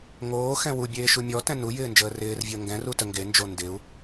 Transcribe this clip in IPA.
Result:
ŋ oː x ɛ̃ w u bʲ eː ʃ u mʲ ɔ t ɛ̃ n u j ɪː n d͡ʒ əː r ɪː r vʲ əː ŋ ɡ ɛ̃ r u t ə ŋ ɡ e n d͡ʒ o n d ɪ u̯

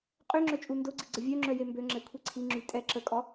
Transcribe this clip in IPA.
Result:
qʼ ø ŋ͡ǁ œ t͡ʃʼ u n d o ɡ͡ǀ i ɡ͡ǀ ə vʲ œ ŋ͡ǁ œ j e m b ø ŋ͡ǁ ɛ kʷʰ i ǀʰ i ŋ͡ǁ y tʼ ɛ ǁ ə kʼ ɔ

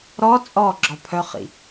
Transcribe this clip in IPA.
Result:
ɾ ɔ t͡sʼ ɔ ɡ͡ǁ ɔ pʰ œ χ ḭ

